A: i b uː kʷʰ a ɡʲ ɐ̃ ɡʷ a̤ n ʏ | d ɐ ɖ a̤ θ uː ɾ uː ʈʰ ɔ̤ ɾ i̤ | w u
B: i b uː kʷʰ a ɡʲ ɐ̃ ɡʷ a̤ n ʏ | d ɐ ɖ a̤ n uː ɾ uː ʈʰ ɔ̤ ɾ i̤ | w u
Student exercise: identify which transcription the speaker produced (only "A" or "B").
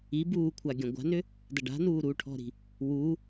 B